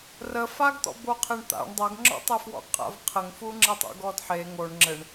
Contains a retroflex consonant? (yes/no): yes